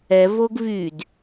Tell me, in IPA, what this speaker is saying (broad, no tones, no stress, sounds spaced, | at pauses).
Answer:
ɛ v o ɡ v y d